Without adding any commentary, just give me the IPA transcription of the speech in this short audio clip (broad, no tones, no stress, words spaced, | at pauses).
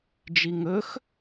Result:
d͡ʒiŋɵx